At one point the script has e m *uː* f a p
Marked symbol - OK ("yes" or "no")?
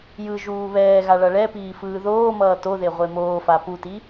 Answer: no